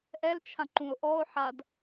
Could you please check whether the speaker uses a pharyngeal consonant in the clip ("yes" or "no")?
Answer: yes